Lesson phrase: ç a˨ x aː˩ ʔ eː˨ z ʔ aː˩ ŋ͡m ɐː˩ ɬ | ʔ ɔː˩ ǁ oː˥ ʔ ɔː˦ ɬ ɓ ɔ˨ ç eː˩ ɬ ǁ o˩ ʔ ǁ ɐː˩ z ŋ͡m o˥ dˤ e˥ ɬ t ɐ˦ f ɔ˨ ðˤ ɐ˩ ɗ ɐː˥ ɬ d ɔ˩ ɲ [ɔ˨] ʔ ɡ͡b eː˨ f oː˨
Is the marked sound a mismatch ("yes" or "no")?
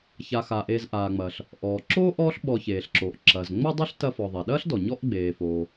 yes